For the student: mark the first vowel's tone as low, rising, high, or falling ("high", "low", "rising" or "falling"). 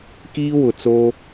high